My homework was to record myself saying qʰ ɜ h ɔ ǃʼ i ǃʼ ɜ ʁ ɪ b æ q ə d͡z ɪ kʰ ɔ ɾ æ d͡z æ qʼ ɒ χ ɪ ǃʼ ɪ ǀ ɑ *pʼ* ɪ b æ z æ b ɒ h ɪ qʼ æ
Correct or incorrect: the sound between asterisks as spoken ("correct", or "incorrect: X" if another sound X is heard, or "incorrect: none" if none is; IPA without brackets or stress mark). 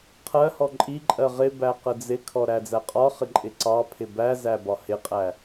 incorrect: pʰ